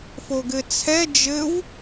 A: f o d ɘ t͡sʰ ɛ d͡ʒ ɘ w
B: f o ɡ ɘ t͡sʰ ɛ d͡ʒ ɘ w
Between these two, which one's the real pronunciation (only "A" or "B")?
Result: B